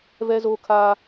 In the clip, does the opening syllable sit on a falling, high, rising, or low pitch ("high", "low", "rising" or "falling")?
high